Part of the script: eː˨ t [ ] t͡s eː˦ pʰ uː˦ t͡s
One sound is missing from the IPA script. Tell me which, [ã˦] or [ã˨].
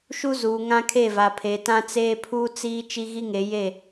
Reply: ã˦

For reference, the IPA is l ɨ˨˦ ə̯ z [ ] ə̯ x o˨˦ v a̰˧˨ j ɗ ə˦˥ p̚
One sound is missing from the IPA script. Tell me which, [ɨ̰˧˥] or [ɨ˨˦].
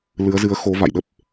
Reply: ɨ˨˦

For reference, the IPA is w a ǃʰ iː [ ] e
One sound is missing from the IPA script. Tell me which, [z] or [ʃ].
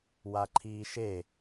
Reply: ʃ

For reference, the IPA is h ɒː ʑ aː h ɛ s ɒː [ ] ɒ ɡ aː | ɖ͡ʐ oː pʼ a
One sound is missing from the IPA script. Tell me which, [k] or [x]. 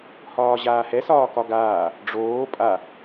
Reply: k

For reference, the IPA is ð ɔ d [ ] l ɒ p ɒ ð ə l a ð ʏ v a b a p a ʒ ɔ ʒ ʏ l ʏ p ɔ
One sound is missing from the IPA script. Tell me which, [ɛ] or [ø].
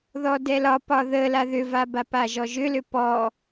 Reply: ɛ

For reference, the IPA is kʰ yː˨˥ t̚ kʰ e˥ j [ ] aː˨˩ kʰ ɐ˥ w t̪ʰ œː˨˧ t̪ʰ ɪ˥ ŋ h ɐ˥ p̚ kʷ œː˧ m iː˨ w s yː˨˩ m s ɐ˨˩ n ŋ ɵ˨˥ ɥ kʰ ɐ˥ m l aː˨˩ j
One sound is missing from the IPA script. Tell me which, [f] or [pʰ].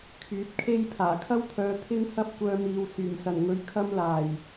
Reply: pʰ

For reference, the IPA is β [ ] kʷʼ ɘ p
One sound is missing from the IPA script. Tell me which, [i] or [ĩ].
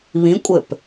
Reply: ĩ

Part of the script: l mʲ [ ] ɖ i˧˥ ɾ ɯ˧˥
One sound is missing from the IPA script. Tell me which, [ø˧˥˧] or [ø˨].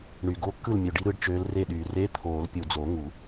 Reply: ø˨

